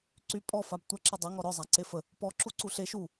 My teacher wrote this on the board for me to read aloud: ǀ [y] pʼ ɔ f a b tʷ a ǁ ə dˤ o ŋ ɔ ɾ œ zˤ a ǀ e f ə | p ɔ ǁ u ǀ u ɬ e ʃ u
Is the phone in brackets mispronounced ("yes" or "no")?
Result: no